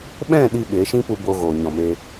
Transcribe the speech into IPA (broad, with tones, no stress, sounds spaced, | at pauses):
ɓ ɛ̃˦˨ ɗ i˦ ɓ e˨˦ ʃ ĩ˦ p u˧ b o˧ ɣ oː˨ ɲ ɔ̃˨ m e˧